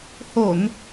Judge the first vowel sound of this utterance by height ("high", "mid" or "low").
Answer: mid